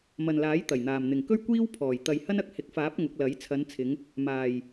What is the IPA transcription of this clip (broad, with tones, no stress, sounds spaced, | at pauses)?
m ɐ˨ n l aː˨˥ j t̪ ɐ˨˩ j n̪ aː˨˩ m n̪ ɪ˨˩ ŋ k ɵ˥ ɥ kʷ iː˥ w pʰ ɔː˨˩ j t̪ ɐ˨ j h ɐ˥ n ɐ˧ k̚ h ɪ˨˥ k̚ f aː˨˥ p̚ ŋ ʊ˨˥ k̚ l ɐ˨˥ j t͡sʰ ɐ˨˧ n t͡sʰ ɪ˨˧ ŋ | m aː˨˩ j